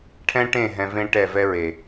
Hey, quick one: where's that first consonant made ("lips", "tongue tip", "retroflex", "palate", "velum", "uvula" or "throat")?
retroflex